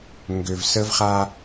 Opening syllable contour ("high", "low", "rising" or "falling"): low